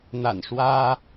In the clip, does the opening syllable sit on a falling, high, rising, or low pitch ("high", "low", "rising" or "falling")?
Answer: low